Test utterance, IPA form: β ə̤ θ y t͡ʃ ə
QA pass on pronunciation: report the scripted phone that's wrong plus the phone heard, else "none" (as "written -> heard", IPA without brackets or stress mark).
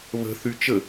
none